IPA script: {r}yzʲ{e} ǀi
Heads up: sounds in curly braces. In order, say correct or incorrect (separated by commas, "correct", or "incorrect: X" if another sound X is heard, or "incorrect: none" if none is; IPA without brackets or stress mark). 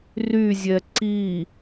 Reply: correct, incorrect: ɛ